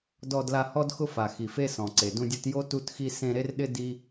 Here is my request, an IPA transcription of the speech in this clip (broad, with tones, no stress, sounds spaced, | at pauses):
d ɔ˦ d l a˦ h ɔ˥ d x ʊ˥ f a˨ x i˨ f e˥ s ɔ̃˩ ǀ e˩ d ũ˦ dʲ u˦ t j o˥ t u˦ t x i˦ s ẽ˦ ɾ e˥ r ɗ ɪ˥ d i˥